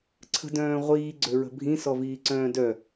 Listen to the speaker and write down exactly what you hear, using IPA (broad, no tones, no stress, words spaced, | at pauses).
ǀʰə̤dœ̃ːʁʷiː ɡ͡ǀøɹə̤bʱĩ sɔviːǀœ̃ːdœ